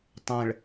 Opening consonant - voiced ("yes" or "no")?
no